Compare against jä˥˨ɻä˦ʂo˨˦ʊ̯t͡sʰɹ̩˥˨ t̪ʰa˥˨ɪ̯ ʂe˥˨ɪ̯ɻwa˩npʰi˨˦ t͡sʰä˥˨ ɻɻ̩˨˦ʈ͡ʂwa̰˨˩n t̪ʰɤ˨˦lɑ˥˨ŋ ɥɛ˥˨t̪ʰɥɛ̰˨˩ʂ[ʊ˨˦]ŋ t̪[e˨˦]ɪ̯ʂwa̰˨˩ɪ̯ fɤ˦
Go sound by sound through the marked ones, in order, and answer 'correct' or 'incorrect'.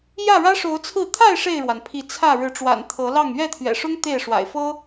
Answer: incorrect: ʊ˦, incorrect: e˥˨

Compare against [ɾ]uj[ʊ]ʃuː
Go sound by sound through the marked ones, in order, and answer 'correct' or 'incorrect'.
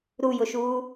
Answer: correct, correct

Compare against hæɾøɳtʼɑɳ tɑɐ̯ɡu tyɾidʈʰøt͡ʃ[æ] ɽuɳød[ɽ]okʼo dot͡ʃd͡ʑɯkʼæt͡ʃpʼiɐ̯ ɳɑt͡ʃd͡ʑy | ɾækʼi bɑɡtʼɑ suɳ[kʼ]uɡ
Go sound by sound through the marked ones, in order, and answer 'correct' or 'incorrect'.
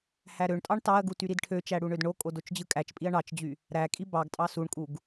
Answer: correct, incorrect: ɳ, correct

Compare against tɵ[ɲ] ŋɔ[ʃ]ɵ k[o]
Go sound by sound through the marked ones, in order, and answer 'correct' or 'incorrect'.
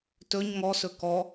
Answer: correct, incorrect: s, incorrect: ɔ

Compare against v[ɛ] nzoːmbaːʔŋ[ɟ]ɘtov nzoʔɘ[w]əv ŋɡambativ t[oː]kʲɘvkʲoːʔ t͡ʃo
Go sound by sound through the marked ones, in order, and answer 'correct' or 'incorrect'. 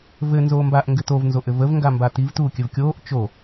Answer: incorrect: ɘ, incorrect: ɡ, incorrect: v, incorrect: uː

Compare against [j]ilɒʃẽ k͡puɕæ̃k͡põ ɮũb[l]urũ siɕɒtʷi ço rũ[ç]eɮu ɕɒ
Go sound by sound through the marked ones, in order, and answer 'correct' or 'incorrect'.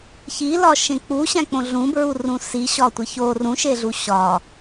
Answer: incorrect: ç, incorrect: ɹ, incorrect: ʃ

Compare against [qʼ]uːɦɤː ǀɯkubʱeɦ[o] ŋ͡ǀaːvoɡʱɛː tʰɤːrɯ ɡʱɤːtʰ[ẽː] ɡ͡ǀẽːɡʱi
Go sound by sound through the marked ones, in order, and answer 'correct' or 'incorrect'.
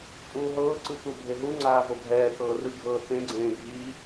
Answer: incorrect: pʼ, incorrect: u, incorrect: ẽ

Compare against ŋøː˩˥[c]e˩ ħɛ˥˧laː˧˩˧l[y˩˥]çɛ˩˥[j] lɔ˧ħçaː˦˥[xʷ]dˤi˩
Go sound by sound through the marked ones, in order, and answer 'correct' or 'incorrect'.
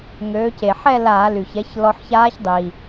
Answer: correct, incorrect: y˩, incorrect: ç, incorrect: ç

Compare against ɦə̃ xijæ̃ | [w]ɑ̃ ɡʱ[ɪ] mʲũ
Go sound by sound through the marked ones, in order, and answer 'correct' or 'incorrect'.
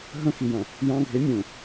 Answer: incorrect: j, correct

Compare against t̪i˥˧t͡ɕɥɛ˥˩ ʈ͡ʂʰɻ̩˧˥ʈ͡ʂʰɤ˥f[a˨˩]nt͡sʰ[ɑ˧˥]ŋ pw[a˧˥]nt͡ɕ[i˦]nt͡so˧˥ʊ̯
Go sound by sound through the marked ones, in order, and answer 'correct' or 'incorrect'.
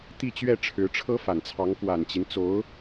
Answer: correct, correct, incorrect: a˨˩, correct

